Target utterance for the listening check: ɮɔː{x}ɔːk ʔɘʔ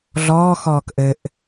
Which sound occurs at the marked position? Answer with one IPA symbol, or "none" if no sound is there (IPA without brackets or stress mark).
x